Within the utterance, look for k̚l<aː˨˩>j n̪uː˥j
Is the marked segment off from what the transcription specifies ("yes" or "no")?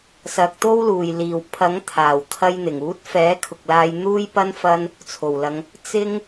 yes